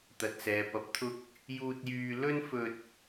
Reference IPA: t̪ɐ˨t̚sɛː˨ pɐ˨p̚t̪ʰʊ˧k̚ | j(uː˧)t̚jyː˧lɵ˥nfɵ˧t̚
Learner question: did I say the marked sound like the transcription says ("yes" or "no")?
yes